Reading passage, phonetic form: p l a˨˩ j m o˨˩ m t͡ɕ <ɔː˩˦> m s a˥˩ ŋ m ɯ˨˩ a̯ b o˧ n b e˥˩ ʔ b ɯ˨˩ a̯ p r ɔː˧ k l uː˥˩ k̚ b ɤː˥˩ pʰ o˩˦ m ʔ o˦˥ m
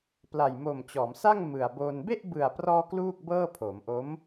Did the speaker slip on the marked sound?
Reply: no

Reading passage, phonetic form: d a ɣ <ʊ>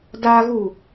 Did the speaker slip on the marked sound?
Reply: yes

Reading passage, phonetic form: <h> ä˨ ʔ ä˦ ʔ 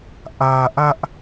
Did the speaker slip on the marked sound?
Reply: yes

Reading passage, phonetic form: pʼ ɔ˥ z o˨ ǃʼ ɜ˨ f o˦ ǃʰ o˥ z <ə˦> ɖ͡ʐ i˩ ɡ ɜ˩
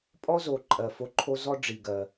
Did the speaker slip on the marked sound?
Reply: yes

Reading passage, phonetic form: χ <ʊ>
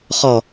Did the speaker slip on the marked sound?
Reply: yes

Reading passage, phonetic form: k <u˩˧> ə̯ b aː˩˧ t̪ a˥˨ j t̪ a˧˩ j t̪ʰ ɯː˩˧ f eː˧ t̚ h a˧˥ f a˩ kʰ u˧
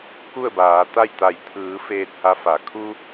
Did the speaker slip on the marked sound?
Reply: yes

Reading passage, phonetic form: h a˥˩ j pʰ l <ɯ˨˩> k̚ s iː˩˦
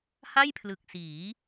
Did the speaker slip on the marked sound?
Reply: no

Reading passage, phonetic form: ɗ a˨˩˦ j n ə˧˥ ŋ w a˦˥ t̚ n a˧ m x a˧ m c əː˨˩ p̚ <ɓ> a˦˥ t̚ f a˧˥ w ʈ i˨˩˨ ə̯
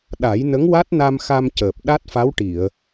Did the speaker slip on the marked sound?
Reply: yes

